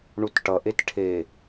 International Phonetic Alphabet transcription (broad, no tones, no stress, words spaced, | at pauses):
ɳutʈʌ ʔetʈʰe